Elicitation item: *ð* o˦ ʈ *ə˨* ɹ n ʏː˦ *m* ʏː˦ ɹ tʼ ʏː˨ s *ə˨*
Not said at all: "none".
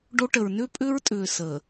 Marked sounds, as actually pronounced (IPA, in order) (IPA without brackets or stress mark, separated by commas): ɖ, ə˨, pʼ, əː˨